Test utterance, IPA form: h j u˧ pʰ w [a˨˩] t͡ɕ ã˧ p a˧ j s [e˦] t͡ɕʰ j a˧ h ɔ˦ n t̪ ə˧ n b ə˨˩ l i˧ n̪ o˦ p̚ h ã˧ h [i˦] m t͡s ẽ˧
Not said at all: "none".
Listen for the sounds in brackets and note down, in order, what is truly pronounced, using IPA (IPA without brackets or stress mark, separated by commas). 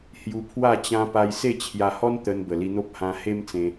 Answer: a˥˧, e˥˧, e˦